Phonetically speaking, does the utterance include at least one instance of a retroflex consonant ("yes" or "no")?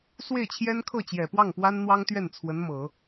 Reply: no